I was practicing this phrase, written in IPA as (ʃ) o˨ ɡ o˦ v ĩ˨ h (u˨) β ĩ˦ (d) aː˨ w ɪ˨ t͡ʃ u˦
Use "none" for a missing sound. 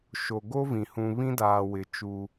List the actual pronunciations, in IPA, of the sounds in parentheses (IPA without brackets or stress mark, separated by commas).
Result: ʃ, ũ˨, d